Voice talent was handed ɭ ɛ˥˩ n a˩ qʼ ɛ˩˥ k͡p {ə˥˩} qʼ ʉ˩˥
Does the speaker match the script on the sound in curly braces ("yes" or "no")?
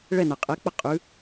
yes